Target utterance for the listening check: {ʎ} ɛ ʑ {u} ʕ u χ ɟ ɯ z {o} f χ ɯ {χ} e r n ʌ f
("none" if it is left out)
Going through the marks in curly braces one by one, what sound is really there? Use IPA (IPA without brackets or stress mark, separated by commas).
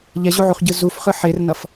ʎ, u, u, ħ